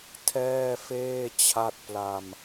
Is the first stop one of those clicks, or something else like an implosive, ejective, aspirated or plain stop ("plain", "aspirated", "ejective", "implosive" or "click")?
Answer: aspirated